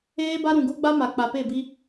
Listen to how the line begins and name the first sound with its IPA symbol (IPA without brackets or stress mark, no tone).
eː